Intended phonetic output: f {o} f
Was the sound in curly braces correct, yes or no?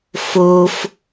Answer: yes